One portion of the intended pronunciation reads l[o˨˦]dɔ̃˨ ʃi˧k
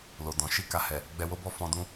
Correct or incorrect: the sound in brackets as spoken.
incorrect: o˨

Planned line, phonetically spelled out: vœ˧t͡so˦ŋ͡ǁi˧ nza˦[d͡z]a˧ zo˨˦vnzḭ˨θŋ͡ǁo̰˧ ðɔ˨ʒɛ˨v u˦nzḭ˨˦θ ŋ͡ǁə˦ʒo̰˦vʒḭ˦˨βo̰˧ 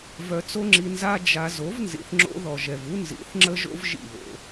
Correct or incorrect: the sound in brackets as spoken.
incorrect: d͡ʒ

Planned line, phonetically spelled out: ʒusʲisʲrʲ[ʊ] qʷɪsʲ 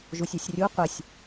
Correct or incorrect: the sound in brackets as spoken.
incorrect: u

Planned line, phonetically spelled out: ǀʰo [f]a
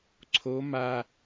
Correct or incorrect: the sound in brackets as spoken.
incorrect: m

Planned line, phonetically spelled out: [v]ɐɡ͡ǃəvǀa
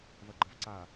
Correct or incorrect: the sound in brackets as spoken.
correct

